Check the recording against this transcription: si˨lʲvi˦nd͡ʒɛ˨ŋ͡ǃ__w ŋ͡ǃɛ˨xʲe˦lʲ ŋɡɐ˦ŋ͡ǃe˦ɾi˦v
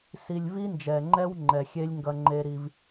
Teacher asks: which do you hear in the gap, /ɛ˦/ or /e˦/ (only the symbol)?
ɛ˦